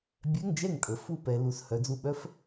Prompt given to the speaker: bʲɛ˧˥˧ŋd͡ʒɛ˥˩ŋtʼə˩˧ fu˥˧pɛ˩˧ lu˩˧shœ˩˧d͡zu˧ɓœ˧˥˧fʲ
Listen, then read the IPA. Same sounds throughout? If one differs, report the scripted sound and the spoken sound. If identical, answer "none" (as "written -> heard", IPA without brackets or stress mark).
fʲ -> f